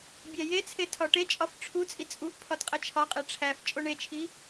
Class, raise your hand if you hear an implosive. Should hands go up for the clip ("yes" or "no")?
no